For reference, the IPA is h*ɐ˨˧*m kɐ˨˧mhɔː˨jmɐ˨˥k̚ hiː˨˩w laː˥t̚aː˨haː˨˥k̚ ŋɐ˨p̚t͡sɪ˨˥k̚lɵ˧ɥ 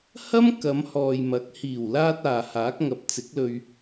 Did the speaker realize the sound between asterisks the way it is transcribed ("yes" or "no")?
no